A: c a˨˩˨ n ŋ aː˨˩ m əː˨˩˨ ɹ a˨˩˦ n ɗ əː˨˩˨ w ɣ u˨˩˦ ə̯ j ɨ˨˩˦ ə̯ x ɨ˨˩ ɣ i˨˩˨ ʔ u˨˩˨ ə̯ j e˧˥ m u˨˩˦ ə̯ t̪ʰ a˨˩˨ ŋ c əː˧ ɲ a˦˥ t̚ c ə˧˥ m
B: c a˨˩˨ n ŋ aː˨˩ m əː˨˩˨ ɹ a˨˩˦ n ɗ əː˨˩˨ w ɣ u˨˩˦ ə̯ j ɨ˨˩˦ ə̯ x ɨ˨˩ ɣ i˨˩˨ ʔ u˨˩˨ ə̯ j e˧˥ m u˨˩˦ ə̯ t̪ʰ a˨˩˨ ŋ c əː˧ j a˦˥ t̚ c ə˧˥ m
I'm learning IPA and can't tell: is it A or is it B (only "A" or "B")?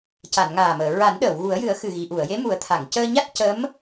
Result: A